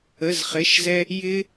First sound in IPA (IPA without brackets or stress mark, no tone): ə